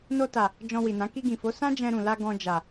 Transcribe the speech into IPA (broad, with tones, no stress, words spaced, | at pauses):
no˧ta˨ | d͡ʒɔ̃˧wi˨nã˨˦ ki˧ɡĩ˨fo˨˦ sã˦d͡ʒɛ̃˧ɾũ˨la˧ ɡɔ̃˧ d͡ʒa˨